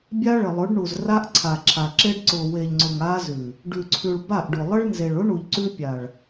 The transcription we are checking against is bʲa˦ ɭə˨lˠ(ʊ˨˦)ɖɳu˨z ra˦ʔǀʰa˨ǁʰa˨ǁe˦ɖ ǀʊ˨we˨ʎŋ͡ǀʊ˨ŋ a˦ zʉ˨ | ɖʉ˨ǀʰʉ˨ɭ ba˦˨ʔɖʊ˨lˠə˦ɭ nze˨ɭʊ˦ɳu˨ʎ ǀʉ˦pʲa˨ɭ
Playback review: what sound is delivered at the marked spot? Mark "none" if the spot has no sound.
ʊ˨˦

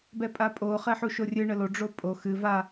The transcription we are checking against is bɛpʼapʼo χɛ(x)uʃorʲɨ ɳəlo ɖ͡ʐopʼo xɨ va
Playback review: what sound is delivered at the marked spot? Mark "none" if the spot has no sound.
ħ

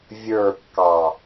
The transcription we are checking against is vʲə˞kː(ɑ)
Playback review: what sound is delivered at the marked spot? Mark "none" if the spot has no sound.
ɑ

